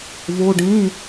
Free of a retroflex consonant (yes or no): no